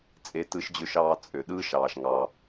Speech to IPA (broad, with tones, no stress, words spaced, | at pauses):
t͡sʼe˥tɯ˥ʃd͡ʑø˥ʃɑː˥ t͡sʼø˩ɗɯː˥ʃɑː˩ʃ ŋɑ˩